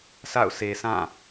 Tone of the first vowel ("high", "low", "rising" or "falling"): falling